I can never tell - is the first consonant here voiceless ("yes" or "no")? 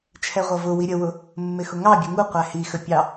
yes